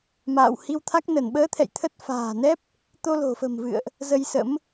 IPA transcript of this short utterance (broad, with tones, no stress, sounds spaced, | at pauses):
m a̰ː˧˨ w h i˧ w t̪ʰ a˦˥ k̚ n ə˧˩ n ɓ əː˨˦ t̪ʰ ɛ̰˧˨ j t̪ʰ ə˦˥ t̚ f a̤ː˨˩ n ɛ˦˥ p̚ | t̪ o˧ l o̤˨˩ f ə̤˨˩ m v ɨ̰˧˨ ə̯ ʔ | z ə˧ j s ə̰˧˥ m